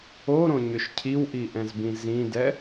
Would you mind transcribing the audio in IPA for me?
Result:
oɾõɲʏʃ cʰiwʔiʔɛ̃zbĩ zĩdɛ

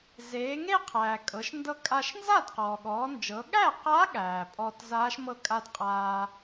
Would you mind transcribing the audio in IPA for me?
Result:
zeː˩˧ŋe˥˧qʰæː˩ kʼɤ˩˧ʃndɤ˧ kʼa˧ʃ nza˥˩dqɔː˩ɠɔː˩˧nd͡ʒɤ˩˧ ɠæ˥˩qa˧˥ ɠæː˩pʼɔː˧t zaː˧˥ʃmɤ˥˩kʼa˥˧d qʼaː˧

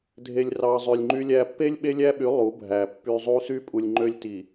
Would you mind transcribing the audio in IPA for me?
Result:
dʱe˨lʲrɑ˨ zˤø˨lʲŋ͡ǃy˦lʲæ˦ pːe˦lʲ ɓe˦lʲæ˦ɓy˨˦ lˠu˨˦bʱæ˨ pːy˨ zˤu˦ sy˦pʼu˨lʲŋ͡ǃø˦lʲti˨

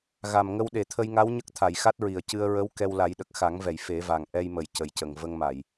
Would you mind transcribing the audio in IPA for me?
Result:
ɣa˨˩mŋə˧w ɗe˨˩˨t̪ʰə˧jŋa˧˥w ɲə˦˥k̚t̪ʰa˨˩˨jxa˦˥t̚ɹi˨˩ə̯ cɨ˧ə̯ ɹə˧˥w kɛ˧wla˨˩˦jɗə˨˩k̚ xa˨˩˦ŋvɛ˨˩˨j fe˨˩˦va˨˩ŋ ʔɛ˧jmə˨˩˨j cə˨˩jcə˨˩ŋ və˧ŋma˨˩˨j

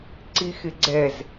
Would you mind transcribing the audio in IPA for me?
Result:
ǀixɪɡ͡ǀɛz

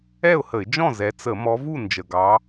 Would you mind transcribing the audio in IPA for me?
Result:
ɛ˥˩ʊ̯hə˧˩˧ɪ̯d͡ʒɔ̃˥˩ zɛ˨˦t͡sə˧˩˧ mɔ˨˦vu˥˩ nd͡ʒə˨˩ɡɑ˨˦

